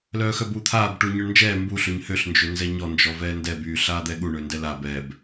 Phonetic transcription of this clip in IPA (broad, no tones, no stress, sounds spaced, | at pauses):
l œː x œ b uː t̪ʰ aː b ʈ uː ɲ œ ɳ n d͡ʒ ɛː m b u ɬ ø ɲ h ø ɬ n d͡ʒ ø n z ɛ ɲ ɔ n d͡ʒ ɔ v ɛː n d ɛ b yː ɬ aː d̪ ɛ ɠ u ɳ øː n d ɛ l a b ɛ b